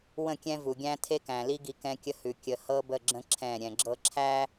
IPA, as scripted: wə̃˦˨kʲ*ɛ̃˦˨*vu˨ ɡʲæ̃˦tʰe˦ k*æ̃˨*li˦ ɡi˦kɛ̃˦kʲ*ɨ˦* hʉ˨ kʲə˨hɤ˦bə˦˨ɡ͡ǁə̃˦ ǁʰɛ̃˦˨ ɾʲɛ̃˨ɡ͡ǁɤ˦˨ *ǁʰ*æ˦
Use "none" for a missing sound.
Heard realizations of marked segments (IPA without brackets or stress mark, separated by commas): ɛ̃˦, æ̃˨, ə˦, ǁʰ